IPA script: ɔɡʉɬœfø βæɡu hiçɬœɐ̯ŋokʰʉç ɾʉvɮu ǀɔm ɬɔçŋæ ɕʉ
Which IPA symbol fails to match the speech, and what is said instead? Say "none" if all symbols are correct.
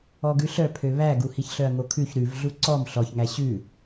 f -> pʰ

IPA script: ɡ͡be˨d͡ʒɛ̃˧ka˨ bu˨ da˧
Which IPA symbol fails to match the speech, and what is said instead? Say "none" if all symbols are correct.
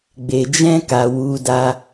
b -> w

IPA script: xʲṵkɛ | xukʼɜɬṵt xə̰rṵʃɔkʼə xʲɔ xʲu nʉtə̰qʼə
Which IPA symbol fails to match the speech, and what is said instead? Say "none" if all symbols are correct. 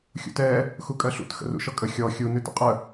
k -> t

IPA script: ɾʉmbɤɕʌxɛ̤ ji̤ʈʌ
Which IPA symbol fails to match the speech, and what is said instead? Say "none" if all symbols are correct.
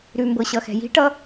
none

